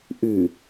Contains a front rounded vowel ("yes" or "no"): yes